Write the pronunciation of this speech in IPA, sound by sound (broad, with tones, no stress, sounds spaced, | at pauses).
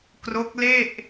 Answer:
k r o˦˥ k̚ l e˥˩ ʔ